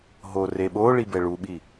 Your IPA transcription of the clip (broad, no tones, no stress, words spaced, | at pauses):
ɦoreɓoɭi bɛɭuɓi